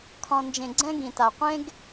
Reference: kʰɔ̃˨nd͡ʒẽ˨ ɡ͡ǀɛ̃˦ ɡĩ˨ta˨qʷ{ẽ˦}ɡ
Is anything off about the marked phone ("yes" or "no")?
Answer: no